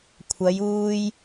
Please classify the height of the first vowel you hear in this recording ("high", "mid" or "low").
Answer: low